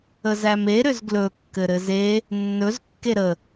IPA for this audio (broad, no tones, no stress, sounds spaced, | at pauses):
ə z æ m e ɾ ʏ z ɡ l ɵ kː ɘ ɾ ɘ z e | nː ɵ z kː e ɾ ə